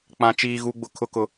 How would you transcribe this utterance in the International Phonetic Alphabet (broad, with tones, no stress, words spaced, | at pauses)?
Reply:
k͡pã˨ t͡ʃiː˨ɣu˨ɡ͡bʊ˨ kʰʊ˨kʊ˨